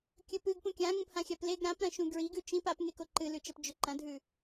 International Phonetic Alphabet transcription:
kʲ ɵ p ɨ ɡ p ũ kʲ ã ŋ ũ p h ã xʲ a p l e ɡ ɾ ã p ɾ ɐ̃ ʃ ũ ɡ ɹ i ɡ ʉ t͡ʃ ĩ p a p ŋ e k o ǃ ɨ l ʉ t͡ʃ ɐ p d͡ʒ ɵ ǃ ɐ̃ dʱ ʉ

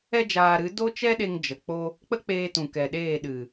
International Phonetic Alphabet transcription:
ɛ˦ d͡ʒ aː˧ ɾ ɨ˨˦ d o˦ t͡ʃ ɛ˦ ɗ e˧ ŋ d͡ʒ ə˨ k͡p o˦ | k͡p ə˦ k͡p eː˧ t ũ˨ k ɛ˨ ɗ eː˦˨ ɗ ɨ˨

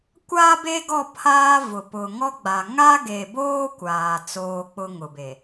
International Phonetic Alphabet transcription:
kʷ aː˦ b e˦ ɡ ɔ˦˨ pʰ aː˦ v ʊ˨ p ʊ˨ ŋ ɔ˦ ɡ͡b a˨ ŋ a˦ ɡ e˨ b oː˦ kʷ aː˨ t͡s oː˦ k͡p ʊ˦ ŋ ʊ˨ b e˨

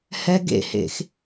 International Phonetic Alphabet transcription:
h ɛ ɡ ḛ h ḛ x

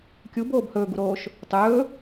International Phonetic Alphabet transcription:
kʲ u b oː b h ɵː ɡ u ɾ oː ʃ | tˤ ɵː

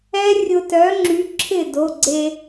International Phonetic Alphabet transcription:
ɛ˦˥ rʲ ʊ˧ t œ˨˥ ŋ͡ǁ y˨˥ ǁʰ ɪ˥˩ d o˩˧˩ ɡ͡ǀ e˧

